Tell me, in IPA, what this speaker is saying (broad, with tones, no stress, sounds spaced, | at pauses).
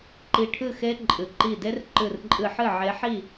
ǃ i˧˩ ʈʰ ɨ˥˩ x e˦˥ ǃʼ ɨ˩ ǃ i˧˩ d e˦˥ r ǃ ɨ˧˩ r ǃʼ ɨ˧˩ ħ ɨ˥˩ ʕ e˨˦ ħ i˥˩